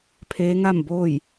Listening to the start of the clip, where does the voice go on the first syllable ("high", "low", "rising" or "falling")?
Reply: rising